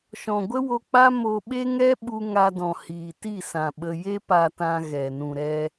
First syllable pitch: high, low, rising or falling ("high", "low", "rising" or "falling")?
low